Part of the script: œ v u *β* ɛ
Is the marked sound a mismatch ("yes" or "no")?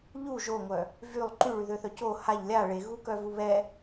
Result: no